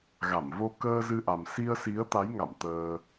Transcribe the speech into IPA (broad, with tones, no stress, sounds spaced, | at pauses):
ɣ a˧˩ m v o˧ k əː˧ z ɨ˧ ʔ a˨˩ m s i˧ ə̯ s i˨˦ ə̯ t̪ a˨˦ j ŋ a̰˧˨ m t̪ əː˧